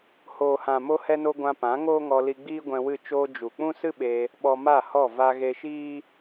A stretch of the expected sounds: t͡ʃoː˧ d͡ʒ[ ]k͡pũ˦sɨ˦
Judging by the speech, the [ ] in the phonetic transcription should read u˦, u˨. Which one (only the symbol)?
u˨